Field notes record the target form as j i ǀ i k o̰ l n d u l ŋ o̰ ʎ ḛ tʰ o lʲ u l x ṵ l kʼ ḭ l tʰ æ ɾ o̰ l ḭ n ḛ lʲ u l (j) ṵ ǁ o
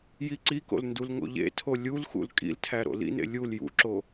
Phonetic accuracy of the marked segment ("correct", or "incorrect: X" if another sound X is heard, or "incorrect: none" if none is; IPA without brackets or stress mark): correct